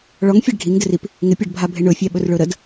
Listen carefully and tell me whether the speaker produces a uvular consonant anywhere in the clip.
no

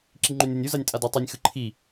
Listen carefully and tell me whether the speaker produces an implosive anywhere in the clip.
no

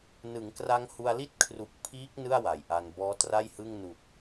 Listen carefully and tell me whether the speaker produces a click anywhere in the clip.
no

